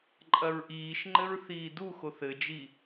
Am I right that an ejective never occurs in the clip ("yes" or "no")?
no